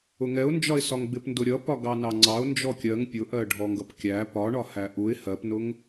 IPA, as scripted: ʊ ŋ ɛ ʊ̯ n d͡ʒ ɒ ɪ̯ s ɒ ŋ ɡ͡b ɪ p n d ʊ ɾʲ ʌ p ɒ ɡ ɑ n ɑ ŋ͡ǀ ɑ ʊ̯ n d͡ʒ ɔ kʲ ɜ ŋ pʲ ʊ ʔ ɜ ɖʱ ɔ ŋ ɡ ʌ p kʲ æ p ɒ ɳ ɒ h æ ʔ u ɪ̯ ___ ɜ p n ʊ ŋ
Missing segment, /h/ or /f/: h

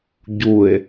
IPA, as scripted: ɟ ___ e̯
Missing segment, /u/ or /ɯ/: u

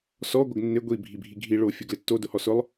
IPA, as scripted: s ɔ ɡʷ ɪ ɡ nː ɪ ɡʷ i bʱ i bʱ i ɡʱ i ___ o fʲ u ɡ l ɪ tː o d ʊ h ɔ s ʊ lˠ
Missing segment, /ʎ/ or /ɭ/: ɭ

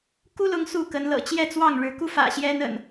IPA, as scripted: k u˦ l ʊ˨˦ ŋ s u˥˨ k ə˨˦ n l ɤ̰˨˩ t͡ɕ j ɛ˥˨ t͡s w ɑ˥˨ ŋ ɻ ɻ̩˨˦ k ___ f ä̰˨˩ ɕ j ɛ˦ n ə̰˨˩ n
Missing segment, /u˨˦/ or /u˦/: u˦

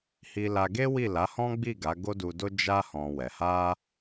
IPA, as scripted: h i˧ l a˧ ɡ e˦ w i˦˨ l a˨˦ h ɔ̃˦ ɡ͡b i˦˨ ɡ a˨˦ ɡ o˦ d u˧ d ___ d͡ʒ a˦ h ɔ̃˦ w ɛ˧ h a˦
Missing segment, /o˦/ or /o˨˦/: o˦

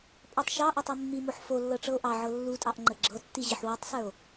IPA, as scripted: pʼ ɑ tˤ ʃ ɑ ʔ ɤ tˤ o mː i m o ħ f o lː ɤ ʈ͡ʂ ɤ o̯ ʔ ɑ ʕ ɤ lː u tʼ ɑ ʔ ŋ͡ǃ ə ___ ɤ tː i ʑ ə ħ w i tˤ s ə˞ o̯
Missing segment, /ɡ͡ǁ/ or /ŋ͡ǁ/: ɡ͡ǁ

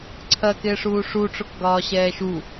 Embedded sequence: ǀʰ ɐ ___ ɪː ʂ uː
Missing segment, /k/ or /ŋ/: k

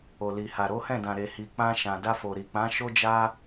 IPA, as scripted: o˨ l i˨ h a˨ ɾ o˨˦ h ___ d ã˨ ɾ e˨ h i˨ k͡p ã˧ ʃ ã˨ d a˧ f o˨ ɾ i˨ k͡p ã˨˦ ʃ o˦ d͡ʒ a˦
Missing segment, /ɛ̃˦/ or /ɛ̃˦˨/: ɛ̃˦˨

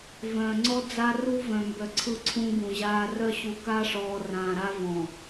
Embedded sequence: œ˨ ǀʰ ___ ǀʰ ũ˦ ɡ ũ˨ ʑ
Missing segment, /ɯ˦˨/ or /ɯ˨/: ɯ˦˨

